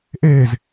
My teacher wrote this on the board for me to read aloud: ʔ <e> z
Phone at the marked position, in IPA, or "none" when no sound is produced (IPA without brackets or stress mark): e